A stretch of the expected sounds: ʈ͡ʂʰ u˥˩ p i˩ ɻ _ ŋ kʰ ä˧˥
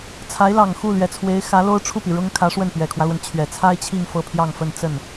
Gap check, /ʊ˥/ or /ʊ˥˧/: ʊ˥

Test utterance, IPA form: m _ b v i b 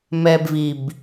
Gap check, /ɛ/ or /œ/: ɛ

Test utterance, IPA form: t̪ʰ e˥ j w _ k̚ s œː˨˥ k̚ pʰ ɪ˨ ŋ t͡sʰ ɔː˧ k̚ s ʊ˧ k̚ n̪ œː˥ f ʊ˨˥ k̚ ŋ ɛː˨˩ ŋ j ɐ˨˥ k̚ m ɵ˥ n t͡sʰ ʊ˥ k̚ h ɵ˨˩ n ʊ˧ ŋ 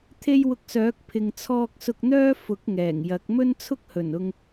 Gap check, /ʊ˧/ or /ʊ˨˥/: ʊ˧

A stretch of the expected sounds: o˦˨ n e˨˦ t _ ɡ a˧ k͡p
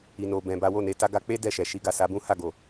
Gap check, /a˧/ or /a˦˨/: a˧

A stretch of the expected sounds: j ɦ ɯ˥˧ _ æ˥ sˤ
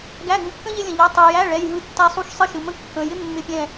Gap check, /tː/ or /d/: tː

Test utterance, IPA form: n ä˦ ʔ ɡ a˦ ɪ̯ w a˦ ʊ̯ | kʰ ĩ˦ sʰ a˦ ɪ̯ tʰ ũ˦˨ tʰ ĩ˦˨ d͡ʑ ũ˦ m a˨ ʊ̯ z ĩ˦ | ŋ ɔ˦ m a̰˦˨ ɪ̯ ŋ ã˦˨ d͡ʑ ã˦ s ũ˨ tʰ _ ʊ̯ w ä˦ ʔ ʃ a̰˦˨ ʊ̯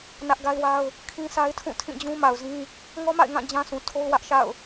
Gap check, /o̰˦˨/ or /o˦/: o˦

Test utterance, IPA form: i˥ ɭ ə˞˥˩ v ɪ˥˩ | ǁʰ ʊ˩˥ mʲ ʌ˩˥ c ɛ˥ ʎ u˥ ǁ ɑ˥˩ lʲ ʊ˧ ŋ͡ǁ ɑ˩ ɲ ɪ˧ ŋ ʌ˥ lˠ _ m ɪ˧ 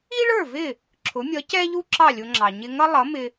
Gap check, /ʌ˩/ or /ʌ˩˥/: ʌ˩˥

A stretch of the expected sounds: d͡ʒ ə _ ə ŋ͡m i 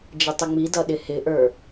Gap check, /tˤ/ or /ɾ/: tˤ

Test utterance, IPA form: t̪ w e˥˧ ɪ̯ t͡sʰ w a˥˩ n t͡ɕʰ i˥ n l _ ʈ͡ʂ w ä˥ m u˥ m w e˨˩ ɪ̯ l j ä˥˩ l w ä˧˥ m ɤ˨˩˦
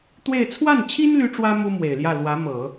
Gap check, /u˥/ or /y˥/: y˥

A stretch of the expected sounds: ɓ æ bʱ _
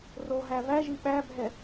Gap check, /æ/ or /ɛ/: ɛ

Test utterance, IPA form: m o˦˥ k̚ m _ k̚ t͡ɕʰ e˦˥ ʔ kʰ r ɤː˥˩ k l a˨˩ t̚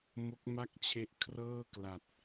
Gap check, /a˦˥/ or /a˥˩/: a˥˩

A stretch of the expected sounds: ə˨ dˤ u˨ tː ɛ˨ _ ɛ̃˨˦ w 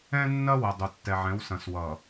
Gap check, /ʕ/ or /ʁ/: ʕ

